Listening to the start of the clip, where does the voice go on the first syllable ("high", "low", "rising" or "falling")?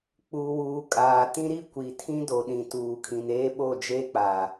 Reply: low